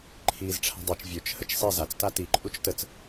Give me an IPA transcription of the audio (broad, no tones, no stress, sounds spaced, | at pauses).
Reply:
ǃʰ iː z ʈ͡ʂʰ a̤ dˤ i t͡ʃ vʲ ø t͡ʃ h ə t͡ʃ sˤ i z a t͡s t a t i ǃʼ u t͡ʃ t ə t͡s